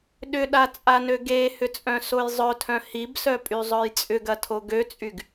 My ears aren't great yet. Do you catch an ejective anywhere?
yes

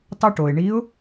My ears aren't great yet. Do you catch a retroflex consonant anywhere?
yes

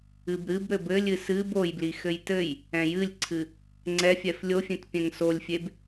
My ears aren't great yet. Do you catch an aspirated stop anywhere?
yes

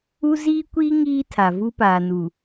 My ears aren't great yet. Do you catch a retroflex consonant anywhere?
no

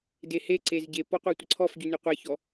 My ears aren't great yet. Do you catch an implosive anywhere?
no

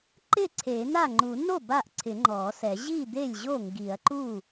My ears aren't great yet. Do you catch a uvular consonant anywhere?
no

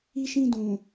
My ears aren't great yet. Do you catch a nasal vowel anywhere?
yes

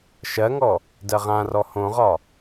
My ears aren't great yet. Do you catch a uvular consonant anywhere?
yes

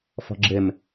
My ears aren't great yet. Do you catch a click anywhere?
yes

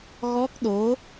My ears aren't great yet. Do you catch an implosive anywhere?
yes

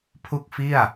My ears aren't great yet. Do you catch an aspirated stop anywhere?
yes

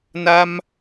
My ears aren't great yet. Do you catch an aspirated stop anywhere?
no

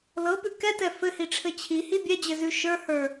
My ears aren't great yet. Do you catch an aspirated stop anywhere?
yes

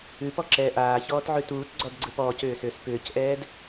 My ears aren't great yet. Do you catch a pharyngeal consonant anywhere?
yes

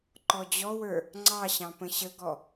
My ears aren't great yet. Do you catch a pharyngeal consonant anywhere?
no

